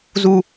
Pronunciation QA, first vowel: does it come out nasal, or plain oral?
oral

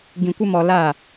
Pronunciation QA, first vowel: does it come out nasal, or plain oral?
nasal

